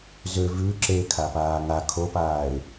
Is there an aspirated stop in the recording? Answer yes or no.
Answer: yes